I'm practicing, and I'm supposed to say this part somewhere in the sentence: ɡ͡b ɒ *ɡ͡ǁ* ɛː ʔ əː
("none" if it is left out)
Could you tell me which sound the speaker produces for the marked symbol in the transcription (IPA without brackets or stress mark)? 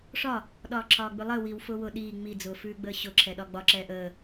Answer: ǁ